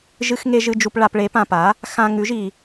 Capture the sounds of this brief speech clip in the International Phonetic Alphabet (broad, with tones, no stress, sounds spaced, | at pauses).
ʒ ɨ˨ x ŋ e˨ ʒ ɨ˨ d͡ʒ u˨ p ɭ a˨ p ɭ e˩˥ p ã˨ p a˩˥ | x ã˨ ŋ ʉ˩˥ ʒ i˨